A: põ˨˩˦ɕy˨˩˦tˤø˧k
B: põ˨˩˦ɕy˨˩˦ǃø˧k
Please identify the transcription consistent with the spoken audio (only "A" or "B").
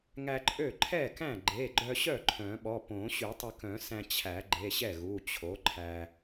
A